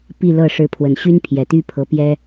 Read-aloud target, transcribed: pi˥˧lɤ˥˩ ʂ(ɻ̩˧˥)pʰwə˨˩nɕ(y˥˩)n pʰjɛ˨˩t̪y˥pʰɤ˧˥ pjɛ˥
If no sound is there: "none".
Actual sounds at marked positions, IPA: ɻ̩˧˥, y˥

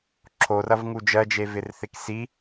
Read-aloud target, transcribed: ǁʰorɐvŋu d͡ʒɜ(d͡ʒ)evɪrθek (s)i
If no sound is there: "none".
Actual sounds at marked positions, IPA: d͡ʒ, s

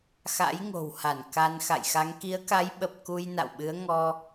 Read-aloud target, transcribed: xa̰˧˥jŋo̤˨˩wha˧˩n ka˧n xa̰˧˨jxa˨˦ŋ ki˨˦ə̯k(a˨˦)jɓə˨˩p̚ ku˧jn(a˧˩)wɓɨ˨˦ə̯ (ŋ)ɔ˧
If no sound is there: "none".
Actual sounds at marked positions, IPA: a˨˦, a̰˧˨, ŋ

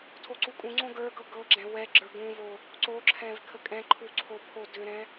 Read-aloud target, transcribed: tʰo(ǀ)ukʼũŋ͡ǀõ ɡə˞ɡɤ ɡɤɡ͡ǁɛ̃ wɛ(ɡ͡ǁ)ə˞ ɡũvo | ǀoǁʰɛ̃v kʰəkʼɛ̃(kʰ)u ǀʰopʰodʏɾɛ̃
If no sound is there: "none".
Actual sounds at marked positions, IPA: ǀ, ɡ͡ǁ, ǃʰ

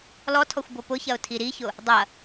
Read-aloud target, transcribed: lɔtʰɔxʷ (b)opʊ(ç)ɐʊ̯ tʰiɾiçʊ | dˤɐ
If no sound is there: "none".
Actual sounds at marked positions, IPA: b, ç

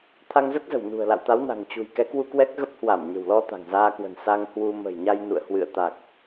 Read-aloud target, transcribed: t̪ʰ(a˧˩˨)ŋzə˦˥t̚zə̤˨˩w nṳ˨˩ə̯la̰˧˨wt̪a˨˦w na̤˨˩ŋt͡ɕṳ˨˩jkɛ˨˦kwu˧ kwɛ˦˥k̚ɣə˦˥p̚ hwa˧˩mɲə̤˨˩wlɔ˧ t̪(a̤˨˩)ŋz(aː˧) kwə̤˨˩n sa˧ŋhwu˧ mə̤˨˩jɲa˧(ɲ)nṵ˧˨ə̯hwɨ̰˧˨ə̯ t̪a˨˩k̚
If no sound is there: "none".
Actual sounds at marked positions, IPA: a˧, a̤˨˩, aː˧, j

